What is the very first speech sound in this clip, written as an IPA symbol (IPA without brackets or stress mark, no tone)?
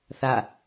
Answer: θ